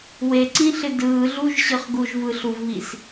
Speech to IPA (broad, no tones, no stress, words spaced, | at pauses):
weǀĩɬɪ dɯːɮuʒɕɯχ ɡuʒvɯɬuvβis